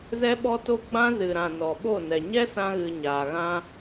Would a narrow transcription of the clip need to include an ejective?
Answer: no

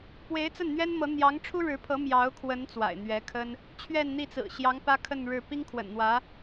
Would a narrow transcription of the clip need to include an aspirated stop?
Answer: yes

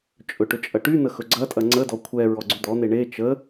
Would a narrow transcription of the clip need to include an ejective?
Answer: yes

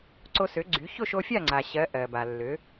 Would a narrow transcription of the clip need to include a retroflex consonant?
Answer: no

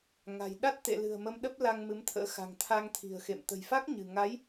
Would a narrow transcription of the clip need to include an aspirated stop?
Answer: yes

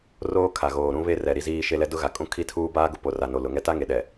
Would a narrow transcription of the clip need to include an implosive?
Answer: yes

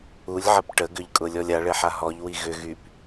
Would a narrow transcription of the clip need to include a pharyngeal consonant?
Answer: yes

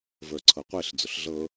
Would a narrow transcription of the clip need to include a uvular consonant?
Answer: yes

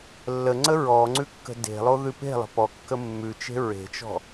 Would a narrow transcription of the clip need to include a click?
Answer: yes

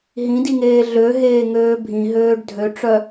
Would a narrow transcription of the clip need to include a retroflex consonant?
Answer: yes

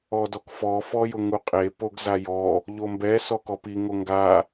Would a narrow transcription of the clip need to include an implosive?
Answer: no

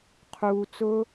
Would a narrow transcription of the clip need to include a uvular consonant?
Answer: yes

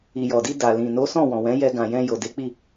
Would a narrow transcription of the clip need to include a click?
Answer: no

